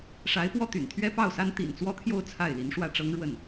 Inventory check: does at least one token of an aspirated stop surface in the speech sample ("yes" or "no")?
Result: yes